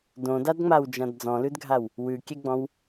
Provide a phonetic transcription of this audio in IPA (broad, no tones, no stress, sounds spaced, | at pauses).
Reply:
d õ d a d ŋ͡m a w d͡ʒ ã d d͡z ɔ̃ l ʉ d ɡʱ a w | w ʉ kʲ ɛ ɡ͡b ɔ̃ w